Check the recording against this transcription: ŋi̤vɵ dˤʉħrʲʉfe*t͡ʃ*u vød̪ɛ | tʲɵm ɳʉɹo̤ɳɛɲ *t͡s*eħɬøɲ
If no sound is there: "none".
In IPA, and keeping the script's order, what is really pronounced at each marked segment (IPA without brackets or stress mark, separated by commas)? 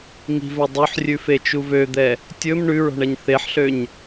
t͡ʃ, θ